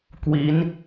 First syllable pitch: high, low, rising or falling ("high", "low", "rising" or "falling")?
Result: rising